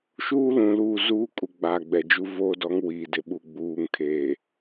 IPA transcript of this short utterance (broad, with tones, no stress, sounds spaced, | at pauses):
ʃ uː˦ l ũ˨ l uː˦˨ z uː˦ kʼ u˨ ɡ͡b aː˨ ɡ͡b ɛ˨ d͡ʒ u˦ v o˦ d ɔ˨˦ ŋ w i˨ d ɪ˨ ɓ u˨ ɡ͡b uː˨ ŋ kʰ eː˨